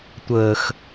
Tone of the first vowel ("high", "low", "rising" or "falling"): low